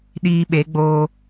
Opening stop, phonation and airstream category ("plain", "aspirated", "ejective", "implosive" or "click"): implosive